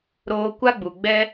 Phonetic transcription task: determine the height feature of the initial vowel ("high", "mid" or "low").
mid